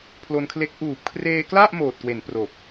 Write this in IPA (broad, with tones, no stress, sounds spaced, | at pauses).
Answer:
pʰ l o˧ n kʰ l e˦˥ k̚ ʔ uː˨˩ p̚ kʰ r eː˧ k l a˥˩ ʔ m oː˨˩ t̚ k w e˩˦ n p r o˨˩ k̚